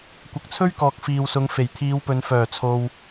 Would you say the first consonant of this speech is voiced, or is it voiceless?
voiceless